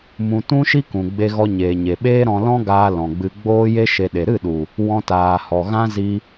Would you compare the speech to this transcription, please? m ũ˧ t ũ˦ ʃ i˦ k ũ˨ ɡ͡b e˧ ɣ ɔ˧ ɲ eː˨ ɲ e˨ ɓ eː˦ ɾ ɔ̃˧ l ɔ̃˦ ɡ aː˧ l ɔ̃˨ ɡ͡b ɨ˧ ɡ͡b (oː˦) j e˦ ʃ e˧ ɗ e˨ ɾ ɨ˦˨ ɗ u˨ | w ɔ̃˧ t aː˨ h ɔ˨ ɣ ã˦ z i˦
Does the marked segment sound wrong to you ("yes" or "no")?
no